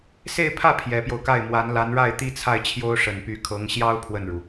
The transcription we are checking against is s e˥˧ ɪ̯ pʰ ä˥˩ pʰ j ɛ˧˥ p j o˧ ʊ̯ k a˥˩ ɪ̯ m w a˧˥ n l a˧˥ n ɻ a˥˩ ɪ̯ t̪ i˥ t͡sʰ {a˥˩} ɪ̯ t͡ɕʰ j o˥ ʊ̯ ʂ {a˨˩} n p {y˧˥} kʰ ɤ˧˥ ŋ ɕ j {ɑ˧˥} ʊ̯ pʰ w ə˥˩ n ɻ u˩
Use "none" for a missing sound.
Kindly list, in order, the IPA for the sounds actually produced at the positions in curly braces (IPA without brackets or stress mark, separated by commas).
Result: a˥˩, ə˨˩, y˧˥, ɑ˥